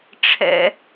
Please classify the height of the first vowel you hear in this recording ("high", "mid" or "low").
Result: mid